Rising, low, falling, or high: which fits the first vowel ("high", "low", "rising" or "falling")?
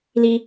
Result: high